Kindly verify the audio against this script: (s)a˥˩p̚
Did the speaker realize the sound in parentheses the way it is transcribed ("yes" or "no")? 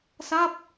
yes